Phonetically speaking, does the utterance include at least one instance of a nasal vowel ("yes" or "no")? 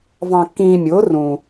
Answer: yes